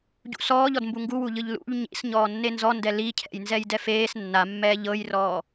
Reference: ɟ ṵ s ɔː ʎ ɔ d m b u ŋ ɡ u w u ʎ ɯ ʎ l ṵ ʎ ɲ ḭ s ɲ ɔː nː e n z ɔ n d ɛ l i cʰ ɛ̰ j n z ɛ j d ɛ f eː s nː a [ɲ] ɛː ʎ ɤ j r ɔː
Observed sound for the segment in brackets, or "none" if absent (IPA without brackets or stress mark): mː